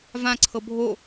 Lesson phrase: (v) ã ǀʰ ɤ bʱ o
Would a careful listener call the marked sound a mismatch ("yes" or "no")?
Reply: no